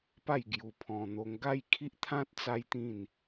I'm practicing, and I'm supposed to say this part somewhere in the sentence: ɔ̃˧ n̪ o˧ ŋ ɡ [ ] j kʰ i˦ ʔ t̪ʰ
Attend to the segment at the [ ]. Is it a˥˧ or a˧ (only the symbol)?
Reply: a˥˧